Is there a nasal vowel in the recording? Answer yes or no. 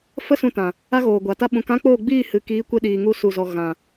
yes